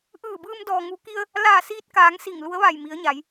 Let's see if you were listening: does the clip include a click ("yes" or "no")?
no